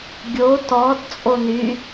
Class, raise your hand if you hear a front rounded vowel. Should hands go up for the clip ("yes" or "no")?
yes